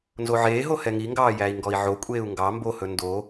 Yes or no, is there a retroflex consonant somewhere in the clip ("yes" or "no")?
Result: no